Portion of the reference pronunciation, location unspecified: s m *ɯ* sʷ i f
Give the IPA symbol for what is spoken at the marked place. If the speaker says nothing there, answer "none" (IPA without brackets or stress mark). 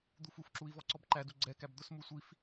u